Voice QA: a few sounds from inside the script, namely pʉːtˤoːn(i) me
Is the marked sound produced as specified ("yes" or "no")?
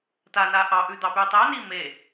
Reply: no